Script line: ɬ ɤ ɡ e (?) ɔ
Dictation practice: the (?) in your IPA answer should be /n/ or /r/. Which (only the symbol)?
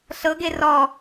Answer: r